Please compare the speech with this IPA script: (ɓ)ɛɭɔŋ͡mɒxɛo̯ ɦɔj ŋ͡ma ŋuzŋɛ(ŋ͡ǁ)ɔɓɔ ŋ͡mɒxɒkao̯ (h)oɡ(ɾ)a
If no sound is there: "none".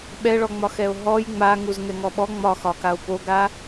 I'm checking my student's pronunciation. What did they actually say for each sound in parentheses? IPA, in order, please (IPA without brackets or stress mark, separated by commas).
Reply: ɓ, ŋ, p, ɾ